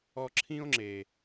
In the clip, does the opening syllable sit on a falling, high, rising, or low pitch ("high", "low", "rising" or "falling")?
high